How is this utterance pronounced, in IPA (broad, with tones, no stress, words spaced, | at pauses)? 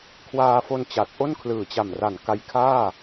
kʰwaː˧fo˧n t͡ɕa˨˩t̚ʔo˥˩n kʰlɯː˨˩t͡ɕa˨˩mra˨˩n ka˧jkʰaː˥˩